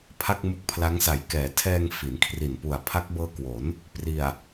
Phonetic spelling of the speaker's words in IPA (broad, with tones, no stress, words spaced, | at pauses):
pʰa˥˩k̚mu˦˥k̚pʰla˦˥ŋ sa˩˦jkɛː˩˦tʰɛː˧ŋ fi˩˦nkʰri˨˩n pu˨˩a̯pʰa˦˥k̚bɤː˦˥kwo˩˦n | pri˨˩a̯